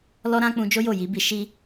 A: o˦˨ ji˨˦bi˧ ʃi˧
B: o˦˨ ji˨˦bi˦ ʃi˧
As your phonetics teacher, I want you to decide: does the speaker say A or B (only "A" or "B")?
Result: A